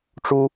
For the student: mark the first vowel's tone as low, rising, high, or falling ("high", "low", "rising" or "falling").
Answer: high